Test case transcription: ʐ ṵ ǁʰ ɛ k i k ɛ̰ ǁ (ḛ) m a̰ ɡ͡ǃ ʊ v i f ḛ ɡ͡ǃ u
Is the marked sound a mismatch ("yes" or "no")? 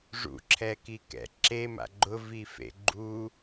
yes